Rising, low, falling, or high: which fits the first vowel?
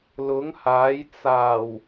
rising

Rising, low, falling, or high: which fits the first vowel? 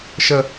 low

